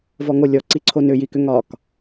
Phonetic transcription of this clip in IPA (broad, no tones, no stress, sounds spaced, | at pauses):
v ɔ ŋ o lʲ ɔ ǀ i ǀʰ o n ʏ j i k ʏ ŋ ɒ k